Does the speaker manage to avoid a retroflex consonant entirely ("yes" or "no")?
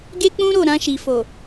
yes